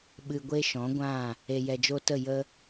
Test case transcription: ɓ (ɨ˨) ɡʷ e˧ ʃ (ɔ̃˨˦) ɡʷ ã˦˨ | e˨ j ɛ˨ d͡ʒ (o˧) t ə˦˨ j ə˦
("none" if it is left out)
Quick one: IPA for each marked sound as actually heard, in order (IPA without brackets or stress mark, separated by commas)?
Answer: ɨ˨, ɔ̃˨˦, o˧